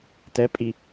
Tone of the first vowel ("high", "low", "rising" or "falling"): rising